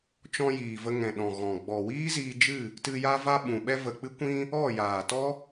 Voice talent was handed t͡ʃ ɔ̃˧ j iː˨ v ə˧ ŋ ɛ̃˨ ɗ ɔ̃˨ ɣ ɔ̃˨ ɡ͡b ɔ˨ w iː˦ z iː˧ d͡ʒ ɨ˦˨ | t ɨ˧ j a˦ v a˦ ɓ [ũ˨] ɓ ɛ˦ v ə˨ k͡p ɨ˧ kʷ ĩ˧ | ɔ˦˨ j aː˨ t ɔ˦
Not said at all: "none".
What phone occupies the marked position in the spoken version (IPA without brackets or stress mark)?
ũ˨